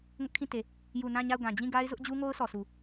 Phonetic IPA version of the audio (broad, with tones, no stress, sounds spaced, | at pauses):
ŋ ʊ˦ ʔ kʰ ĩ˦˨ t e˨ | j u˨ n ã˦˨ ɲ a˦˨ ʊ̯ ɡ ã˨ d͡ʑ ĩ˦˨ ɡ a˦ ɪ̯ z ʊ˦ ʔ d͡ʑ u˦ ŋ o˦ ʊ̯ sʰ ɔ˨ sʰ u˨